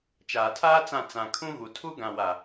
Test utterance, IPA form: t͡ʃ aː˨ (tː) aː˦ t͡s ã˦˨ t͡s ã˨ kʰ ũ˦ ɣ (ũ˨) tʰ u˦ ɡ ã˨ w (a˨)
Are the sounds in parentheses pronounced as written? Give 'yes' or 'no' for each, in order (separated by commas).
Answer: no, no, yes